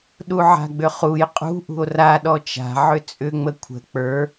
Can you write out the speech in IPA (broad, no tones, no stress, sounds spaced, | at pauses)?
ɗ u ʕ a̤ ɡ͡b ʏ χ u j qʼ ṳ ʔ ṳ o̯ r a ɗ ɔ t͡ʃ a̤ ʕ ʏ t͡sʼ ʏ ŋ͡m ə kʷʰ ə̤ k͡p ə˞